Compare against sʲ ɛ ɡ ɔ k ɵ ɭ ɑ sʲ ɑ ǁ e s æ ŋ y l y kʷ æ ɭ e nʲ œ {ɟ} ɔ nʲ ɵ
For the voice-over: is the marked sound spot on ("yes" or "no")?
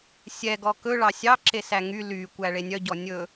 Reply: yes